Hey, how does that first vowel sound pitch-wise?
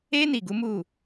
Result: high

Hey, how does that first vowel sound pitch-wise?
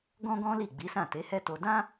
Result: high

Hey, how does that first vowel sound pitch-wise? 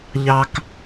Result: low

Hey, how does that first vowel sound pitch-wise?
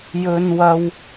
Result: high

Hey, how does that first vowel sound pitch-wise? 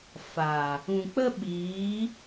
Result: low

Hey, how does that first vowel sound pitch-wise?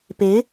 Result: rising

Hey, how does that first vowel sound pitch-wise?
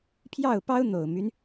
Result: falling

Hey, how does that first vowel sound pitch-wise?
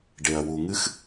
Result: low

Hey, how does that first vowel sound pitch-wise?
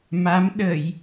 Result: rising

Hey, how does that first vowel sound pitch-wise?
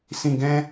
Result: low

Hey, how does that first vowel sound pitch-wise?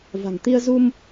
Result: low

